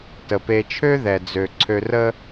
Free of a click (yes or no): no